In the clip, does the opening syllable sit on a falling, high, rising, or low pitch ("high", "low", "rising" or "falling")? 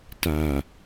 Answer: low